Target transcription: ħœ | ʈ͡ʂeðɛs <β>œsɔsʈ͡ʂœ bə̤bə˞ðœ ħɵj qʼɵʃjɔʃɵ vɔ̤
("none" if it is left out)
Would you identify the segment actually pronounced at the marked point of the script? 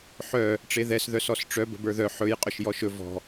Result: ð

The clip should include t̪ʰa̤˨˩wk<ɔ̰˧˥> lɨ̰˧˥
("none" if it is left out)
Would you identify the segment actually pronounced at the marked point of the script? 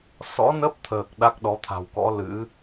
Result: ɔ̰˧˥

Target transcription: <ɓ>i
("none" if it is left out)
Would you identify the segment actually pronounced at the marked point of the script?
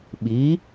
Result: ɓ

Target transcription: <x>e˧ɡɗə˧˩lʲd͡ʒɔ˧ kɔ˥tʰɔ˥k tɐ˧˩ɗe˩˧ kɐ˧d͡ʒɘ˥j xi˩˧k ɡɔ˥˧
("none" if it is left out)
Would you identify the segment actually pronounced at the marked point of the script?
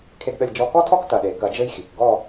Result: kʰ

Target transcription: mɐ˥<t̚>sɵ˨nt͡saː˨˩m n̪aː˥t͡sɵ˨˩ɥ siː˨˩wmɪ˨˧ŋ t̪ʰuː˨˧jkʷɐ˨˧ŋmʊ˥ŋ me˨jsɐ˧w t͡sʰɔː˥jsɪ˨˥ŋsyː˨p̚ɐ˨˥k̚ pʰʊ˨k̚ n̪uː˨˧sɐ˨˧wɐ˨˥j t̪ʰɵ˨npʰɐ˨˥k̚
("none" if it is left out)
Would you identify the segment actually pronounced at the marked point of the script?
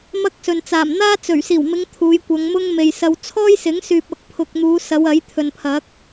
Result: k̚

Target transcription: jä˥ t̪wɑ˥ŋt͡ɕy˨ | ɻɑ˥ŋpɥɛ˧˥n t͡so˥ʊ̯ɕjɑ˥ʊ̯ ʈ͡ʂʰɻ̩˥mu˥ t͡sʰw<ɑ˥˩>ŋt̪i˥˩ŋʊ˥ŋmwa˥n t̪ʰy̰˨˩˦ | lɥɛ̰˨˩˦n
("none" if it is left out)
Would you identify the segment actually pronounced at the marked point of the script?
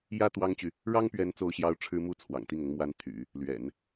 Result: ɑ̰˨˩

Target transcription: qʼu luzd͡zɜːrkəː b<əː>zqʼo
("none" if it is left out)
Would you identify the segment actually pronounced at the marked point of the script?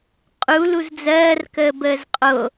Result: əː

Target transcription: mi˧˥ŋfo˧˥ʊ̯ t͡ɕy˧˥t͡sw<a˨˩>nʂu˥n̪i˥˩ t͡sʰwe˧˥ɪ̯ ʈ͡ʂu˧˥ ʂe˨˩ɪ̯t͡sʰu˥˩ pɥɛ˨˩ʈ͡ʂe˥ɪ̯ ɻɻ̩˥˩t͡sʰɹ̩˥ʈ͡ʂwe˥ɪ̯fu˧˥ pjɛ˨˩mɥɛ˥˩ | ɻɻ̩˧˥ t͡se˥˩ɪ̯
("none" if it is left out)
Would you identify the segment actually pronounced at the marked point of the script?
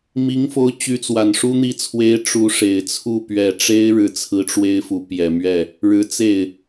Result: a˨˩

